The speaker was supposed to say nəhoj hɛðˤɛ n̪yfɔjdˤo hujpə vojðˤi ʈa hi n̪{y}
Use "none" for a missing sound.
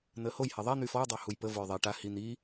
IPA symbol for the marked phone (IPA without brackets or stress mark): i